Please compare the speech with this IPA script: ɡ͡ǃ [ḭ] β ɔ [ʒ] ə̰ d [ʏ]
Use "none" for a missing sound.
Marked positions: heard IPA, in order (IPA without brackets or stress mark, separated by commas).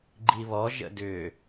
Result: i, ʒ, ʏ